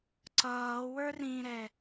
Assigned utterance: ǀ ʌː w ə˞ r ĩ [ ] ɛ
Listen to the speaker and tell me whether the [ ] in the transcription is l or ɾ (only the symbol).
ɾ